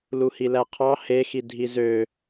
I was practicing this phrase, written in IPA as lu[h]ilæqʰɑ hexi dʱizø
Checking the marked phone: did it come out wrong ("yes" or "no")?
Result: no